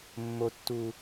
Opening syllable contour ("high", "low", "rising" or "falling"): high